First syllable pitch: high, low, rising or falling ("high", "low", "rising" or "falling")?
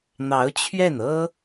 rising